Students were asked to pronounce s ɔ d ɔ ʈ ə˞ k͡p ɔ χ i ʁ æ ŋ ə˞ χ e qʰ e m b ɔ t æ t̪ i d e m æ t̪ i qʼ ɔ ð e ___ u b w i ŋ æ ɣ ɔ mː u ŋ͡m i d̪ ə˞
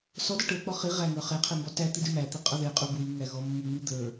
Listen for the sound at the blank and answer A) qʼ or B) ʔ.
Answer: A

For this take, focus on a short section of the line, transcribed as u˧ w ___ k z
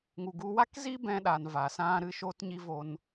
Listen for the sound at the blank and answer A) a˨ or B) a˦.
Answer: B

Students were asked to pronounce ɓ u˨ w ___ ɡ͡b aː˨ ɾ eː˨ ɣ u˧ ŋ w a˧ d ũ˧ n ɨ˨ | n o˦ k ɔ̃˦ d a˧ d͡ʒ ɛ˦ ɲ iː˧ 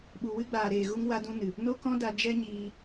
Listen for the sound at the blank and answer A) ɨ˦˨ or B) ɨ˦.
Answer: B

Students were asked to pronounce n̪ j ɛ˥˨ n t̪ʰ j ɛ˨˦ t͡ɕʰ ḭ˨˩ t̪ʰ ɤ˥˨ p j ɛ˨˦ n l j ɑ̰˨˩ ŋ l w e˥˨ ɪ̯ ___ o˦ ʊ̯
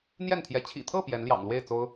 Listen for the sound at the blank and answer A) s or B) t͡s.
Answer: B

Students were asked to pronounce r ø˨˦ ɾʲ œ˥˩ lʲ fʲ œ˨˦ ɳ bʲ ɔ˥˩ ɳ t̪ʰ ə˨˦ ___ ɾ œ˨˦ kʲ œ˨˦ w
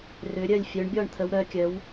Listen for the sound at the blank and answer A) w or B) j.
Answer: A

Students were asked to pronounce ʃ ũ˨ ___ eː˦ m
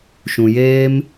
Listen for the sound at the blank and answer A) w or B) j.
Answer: B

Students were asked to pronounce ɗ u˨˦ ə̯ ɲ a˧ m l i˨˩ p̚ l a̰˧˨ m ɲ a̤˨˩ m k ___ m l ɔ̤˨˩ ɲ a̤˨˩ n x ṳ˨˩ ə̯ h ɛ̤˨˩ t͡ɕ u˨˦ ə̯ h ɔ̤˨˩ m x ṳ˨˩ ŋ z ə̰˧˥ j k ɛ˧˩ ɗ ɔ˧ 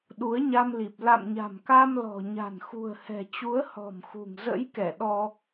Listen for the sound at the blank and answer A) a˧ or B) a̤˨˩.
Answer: A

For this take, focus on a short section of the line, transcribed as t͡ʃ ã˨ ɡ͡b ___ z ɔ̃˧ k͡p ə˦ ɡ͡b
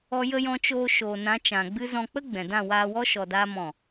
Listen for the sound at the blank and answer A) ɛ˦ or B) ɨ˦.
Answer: B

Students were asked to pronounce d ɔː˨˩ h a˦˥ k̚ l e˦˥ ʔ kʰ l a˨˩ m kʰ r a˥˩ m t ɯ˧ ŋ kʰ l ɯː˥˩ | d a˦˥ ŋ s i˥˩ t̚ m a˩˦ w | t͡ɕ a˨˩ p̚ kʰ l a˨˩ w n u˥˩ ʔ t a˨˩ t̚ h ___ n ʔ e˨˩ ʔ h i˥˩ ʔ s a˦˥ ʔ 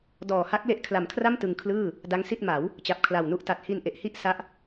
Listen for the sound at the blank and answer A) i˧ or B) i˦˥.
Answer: A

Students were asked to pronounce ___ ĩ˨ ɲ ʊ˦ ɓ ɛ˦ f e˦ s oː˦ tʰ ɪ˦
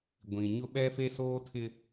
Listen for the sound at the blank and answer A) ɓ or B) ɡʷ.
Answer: B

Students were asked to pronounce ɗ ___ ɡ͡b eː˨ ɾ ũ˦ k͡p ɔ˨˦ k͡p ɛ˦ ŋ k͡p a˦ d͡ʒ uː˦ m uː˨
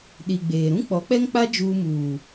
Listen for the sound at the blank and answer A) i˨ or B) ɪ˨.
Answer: A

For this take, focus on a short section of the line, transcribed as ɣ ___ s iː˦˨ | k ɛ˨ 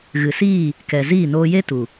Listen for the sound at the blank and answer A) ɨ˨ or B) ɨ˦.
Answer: A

